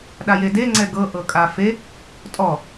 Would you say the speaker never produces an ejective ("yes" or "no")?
no